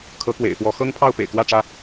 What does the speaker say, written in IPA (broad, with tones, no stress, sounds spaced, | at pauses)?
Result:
kʰ ɤ˨˦ k w ḛ˨˩ ɪ̯ f w ɔ˨˦ x ɤ˦ ŋ pʰ ɑ˥˨ ʊ̯ p ḛ˨˩ ɪ̯ k w ä˥˨ ʈ͡ʂ ä˥˨